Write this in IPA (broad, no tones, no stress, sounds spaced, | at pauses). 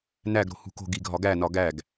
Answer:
n æ ɡ ɾ o̤ h ṳ k o̤ ɡ i ɡʱ ɒ ɡ æ n ɒ ɡ æ ɡ